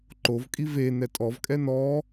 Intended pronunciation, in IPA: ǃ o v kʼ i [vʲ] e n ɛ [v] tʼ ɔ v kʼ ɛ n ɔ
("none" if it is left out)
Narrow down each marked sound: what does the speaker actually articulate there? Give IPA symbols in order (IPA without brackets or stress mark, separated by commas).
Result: v, none